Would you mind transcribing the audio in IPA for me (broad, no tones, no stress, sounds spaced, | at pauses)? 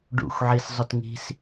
ɖ ṵ xʷ ʕ i s zˤ ʊ t ŋ i̤ s